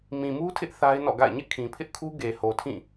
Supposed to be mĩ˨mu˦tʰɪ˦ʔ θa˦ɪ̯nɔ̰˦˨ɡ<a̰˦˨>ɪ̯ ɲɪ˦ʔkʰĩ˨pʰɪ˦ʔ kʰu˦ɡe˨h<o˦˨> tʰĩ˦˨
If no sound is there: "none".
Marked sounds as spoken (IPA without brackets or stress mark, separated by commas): a̰˦˨, o˨